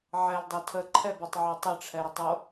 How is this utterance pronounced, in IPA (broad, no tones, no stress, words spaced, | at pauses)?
ʕɛldˤɛ tʰəǃʰɛbɤtˤʕɛ tˤəʈ͡ʂʰɛɾətˤo